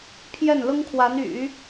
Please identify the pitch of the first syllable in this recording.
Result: falling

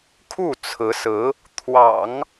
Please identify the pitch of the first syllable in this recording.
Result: falling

